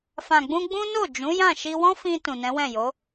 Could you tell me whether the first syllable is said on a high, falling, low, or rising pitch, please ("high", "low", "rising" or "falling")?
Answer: low